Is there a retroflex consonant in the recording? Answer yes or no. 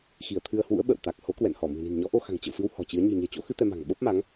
no